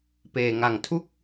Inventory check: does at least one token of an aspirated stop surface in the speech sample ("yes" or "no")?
yes